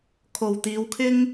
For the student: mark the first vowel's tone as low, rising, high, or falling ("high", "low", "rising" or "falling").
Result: low